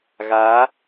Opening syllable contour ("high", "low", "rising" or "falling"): rising